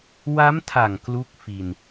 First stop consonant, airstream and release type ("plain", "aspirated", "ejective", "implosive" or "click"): aspirated